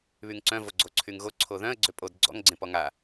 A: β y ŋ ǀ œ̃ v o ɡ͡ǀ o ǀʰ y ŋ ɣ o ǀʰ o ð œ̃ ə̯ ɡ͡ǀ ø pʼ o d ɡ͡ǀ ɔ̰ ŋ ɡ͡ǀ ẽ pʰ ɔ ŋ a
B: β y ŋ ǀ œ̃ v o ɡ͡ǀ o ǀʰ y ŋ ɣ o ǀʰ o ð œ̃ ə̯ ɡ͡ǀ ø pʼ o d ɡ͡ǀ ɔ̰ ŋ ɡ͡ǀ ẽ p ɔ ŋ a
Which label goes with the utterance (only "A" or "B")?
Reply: B